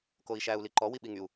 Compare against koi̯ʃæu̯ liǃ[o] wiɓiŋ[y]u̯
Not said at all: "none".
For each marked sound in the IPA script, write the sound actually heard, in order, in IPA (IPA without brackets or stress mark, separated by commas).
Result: ɔ, y